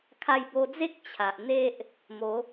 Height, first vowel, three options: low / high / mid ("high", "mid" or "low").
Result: low